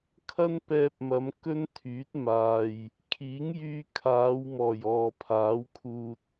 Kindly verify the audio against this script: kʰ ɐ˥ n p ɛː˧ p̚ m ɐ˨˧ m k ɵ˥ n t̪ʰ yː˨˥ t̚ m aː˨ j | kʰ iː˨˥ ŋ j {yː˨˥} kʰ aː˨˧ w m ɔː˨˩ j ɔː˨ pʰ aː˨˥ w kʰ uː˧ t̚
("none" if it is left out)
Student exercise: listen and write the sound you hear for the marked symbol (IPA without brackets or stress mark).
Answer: yː˧